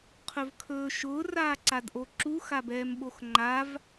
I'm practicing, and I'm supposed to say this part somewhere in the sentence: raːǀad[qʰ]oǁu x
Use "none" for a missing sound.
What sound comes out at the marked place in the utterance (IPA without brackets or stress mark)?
ʔ